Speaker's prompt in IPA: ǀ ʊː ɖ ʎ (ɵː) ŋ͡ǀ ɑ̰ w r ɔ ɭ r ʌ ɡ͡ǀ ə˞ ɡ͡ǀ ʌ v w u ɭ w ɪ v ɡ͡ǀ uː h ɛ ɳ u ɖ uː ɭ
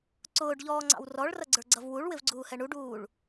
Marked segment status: incorrect: ɔː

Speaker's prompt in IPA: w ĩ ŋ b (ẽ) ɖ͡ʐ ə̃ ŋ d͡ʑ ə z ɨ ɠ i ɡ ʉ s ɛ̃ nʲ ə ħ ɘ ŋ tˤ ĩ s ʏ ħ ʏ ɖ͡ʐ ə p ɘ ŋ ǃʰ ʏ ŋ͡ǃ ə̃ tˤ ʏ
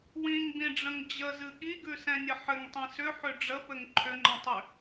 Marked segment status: incorrect: ĩ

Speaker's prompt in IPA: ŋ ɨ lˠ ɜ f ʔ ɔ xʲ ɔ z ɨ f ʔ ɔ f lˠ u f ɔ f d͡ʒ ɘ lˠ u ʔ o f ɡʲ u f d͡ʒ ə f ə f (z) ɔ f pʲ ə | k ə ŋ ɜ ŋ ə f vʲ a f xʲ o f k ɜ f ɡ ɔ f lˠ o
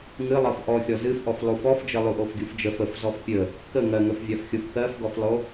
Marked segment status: correct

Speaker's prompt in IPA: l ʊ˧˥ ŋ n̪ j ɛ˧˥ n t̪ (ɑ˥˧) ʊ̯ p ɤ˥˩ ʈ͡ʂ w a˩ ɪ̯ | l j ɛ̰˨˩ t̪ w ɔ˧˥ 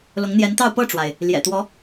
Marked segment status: correct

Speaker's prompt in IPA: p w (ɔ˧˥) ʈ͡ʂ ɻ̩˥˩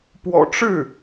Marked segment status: incorrect: ɔ̰˨˩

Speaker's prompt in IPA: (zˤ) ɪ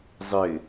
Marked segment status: correct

